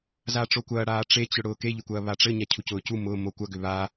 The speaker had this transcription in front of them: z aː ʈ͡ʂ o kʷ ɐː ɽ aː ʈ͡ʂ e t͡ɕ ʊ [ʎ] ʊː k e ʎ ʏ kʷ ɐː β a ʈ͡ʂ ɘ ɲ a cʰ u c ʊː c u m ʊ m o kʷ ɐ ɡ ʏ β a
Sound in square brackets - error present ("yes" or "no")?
yes